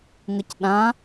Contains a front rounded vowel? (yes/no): no